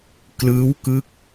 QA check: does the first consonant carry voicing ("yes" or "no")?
no